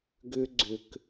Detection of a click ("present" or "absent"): present